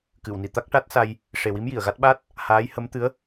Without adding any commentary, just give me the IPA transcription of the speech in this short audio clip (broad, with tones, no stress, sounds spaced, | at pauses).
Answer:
k ɨ˨˩˨ w n i˨˩˨ t̪ a˦˥ k̚ ʈ a˦˥ t̚ s a˧ j | ʂ e˨˩ w i˧˥ m j i˨˩˨ ə̯ ɣ a˦˥ t̚ ɓ a˦˥ t̚ | h aː˧˥ j h ə˧˥ m t̪ ɨ˧˥ ə̯